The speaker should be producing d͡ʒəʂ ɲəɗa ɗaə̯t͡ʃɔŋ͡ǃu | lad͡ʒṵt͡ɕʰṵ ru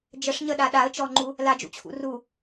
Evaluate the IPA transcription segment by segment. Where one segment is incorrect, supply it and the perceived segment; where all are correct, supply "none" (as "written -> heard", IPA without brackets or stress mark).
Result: none